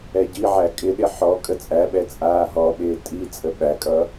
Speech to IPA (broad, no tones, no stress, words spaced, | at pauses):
ɛɟiʕæ kʼɪɗɪ ħɔ kʼət͡sʼæɓɛ t͡sʼaːɦɔɓɪː tʼi t͡sʼəɓækʼʌ